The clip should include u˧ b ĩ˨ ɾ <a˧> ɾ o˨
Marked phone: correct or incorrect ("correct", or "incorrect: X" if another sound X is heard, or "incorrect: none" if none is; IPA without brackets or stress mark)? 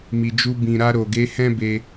correct